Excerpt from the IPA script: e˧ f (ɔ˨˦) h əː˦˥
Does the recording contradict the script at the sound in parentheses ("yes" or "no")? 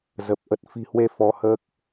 no